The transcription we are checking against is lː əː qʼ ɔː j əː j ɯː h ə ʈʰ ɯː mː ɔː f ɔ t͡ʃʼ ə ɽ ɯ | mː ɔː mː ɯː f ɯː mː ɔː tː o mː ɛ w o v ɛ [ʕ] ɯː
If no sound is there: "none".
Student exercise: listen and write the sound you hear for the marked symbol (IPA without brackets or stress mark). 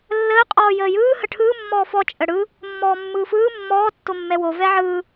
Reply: ʕ